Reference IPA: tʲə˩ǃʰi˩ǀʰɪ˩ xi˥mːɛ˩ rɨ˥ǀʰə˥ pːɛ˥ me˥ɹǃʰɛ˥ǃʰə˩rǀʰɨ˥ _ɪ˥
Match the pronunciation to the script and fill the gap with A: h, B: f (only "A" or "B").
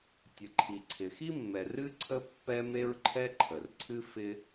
B